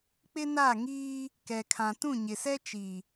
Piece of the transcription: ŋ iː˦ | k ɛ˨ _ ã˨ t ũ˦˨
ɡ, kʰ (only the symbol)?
kʰ